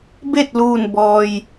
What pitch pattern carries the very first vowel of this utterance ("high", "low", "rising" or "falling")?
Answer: falling